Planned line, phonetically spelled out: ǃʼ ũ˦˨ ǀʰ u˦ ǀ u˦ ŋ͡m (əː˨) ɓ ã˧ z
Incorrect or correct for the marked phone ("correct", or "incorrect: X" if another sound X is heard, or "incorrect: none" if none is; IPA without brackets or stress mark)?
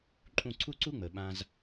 correct